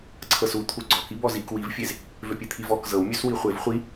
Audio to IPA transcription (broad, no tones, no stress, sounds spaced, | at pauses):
ǀʰ ɤ s u t̪ʰ u ɡ͡ǀ ɔ k i b ɔ z i k w i v fʲ e z | v ø pʲ e t̪ʰ i v ɔ k z ɤ w mʲ ø s w i χʷ e v χʷ i